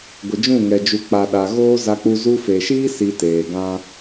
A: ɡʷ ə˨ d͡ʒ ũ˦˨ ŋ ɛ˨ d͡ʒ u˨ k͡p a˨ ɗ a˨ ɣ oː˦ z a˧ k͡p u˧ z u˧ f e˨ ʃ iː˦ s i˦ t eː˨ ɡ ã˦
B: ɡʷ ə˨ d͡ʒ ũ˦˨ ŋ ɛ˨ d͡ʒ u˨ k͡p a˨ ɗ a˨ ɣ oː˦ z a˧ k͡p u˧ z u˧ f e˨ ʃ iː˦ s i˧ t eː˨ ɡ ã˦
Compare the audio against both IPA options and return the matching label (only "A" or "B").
B